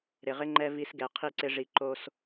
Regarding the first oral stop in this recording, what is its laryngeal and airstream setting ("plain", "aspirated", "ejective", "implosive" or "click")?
click